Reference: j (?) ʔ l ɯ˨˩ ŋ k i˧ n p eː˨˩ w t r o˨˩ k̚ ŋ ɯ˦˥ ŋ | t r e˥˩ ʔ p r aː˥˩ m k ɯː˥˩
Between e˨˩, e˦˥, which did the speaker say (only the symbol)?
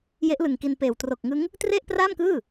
e˦˥